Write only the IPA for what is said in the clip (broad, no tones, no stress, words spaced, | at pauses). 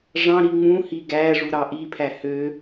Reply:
ʐɑ̃ɾi ŋ͡mũhi ɡæ ʐuɾɑʔipʰæ hø